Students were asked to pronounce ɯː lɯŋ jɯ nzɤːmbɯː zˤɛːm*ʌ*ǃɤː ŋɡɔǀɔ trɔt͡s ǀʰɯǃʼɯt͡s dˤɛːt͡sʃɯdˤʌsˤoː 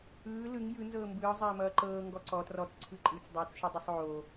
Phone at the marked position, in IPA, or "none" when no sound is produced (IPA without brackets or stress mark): ʌː